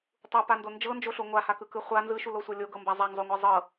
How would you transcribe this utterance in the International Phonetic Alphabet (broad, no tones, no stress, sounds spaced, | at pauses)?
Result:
tˤ u p a n d o n d͡ʒ ɤ n d͡ʒ o ɬ o ŋʷ a h a k ɯ k ɯ χʷ a n z ɯ ʃ u l o sʷ ɤ lʲ o ɡ ɤ m b a zˤ a ŋ zˤ o ŋʷ a zˤ ɤ